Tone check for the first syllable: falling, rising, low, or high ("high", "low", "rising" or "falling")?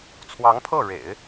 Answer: rising